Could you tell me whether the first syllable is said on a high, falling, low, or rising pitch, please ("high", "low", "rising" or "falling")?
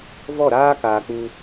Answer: falling